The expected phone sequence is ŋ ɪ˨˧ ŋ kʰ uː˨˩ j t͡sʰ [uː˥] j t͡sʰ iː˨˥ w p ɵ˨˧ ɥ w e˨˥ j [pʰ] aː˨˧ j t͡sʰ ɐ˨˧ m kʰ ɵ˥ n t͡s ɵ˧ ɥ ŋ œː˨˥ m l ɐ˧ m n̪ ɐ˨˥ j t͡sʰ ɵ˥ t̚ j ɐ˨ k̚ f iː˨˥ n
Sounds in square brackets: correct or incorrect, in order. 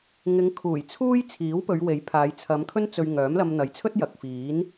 correct, correct

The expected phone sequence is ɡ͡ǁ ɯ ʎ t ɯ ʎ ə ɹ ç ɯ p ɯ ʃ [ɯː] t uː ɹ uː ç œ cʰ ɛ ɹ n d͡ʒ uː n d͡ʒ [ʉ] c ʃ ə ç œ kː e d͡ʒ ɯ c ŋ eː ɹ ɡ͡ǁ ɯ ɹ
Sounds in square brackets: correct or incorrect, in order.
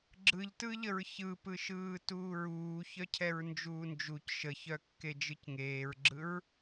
correct, incorrect: u

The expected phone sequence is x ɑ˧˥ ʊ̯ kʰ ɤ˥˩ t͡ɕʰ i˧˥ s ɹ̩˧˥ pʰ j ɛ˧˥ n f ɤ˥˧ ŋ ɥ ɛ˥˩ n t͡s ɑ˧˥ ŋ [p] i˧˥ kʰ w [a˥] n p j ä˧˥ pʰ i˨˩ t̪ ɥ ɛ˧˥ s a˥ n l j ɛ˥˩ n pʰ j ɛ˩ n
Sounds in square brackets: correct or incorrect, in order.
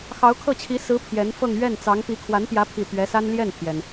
correct, incorrect: a˧˥

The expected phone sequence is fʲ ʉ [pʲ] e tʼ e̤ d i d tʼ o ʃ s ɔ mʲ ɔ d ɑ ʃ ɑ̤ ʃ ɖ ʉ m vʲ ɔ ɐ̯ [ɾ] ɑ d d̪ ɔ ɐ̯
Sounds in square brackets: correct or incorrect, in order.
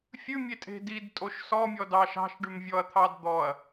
incorrect: mʲ, incorrect: t̪ʰ

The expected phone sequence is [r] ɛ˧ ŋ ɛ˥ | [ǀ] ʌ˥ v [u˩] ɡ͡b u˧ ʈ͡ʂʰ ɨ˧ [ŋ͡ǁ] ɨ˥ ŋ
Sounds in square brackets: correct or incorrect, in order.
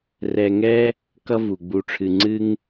correct, incorrect: k, correct, incorrect: ŋ͡ǀ

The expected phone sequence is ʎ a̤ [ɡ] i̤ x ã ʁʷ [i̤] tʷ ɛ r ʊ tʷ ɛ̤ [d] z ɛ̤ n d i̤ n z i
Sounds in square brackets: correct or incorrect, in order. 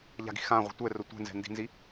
correct, correct, incorrect: n

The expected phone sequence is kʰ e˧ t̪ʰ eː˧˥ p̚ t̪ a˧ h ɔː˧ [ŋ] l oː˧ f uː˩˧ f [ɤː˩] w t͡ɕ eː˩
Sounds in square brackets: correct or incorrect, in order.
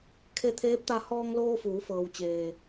correct, correct

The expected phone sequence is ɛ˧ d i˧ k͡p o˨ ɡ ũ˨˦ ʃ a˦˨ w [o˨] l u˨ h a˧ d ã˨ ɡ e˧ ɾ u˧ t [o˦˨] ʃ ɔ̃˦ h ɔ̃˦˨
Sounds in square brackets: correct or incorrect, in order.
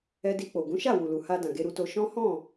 incorrect: u˨, incorrect: o˧

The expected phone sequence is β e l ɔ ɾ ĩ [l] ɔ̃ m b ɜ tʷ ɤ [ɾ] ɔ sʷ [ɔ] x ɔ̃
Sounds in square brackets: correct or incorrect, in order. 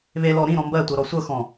incorrect: ɾ, correct, incorrect: ɤ

